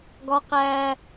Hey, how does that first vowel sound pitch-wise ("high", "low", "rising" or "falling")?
high